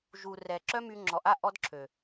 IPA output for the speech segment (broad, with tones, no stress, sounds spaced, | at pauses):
ʒ u˨ r ɛ˨ ǁ œ˦ m y˧ ŋ͡ǁ ɔ˨ ʔ a˦ ʔ ɔ˦ d ǁʰ ø˨